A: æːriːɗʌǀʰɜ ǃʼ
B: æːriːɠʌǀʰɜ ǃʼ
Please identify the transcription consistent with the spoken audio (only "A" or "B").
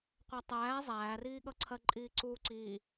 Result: B